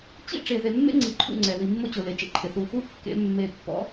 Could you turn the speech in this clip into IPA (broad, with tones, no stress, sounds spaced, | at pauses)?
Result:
t͡ɕ ḭ˦ ʈ͡ʂ e˨ ð e˨ mː ḛ˦ ŋ͡ǀ i˨ ǃʰ ṵ˦˨ ŋ͡ǀ ɛ˨ ð i˨ mː o˦ t͡ɕ ʊ˨ l e˨ t͡ʃ ḛ˦ ǃʰ ɪ˨ θ u˦˨ | u˦ kː ḛ˨˦ mː e˨ pː ɔ̰˨˦